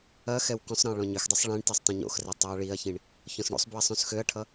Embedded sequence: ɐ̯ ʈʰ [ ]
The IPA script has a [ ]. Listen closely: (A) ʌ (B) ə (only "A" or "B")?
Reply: A